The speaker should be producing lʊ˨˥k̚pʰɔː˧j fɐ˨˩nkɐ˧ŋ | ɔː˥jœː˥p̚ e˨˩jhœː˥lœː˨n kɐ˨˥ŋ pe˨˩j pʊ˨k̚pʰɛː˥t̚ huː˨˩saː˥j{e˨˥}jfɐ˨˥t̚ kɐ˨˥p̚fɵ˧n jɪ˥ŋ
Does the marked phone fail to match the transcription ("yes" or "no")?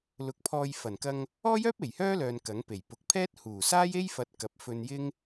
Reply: yes